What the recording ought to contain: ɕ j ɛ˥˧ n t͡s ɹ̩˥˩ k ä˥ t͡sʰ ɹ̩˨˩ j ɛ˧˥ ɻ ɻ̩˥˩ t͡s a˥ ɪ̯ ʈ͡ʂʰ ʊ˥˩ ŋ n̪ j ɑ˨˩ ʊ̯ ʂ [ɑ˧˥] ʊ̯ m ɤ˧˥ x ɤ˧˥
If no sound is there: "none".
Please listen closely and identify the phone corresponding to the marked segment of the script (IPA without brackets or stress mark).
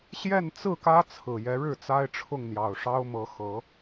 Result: ɑ˥